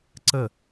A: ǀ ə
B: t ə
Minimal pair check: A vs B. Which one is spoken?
A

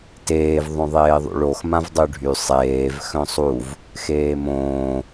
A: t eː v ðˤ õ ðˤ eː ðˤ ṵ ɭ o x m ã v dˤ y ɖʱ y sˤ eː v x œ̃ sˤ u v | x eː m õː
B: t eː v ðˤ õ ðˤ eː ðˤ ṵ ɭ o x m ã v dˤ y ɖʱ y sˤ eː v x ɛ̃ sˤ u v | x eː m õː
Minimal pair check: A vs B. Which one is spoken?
A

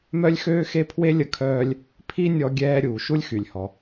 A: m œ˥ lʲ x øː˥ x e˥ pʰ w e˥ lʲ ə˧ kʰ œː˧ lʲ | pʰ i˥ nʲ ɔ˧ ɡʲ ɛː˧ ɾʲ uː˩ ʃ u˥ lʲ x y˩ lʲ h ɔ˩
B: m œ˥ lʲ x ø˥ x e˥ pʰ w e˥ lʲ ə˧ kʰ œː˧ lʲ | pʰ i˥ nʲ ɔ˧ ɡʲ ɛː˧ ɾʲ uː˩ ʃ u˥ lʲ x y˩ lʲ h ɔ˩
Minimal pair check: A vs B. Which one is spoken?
A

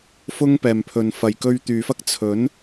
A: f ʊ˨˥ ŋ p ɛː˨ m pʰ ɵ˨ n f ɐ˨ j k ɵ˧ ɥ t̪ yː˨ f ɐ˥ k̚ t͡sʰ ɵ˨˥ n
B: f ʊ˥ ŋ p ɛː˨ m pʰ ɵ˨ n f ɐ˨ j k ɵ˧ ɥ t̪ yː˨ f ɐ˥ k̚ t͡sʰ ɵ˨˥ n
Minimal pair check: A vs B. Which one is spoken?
B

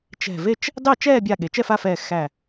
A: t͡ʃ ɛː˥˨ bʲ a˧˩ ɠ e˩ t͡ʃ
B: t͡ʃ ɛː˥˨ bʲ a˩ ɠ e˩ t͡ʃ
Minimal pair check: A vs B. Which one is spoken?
A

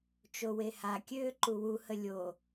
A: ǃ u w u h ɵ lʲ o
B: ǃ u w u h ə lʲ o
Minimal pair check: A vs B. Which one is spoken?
B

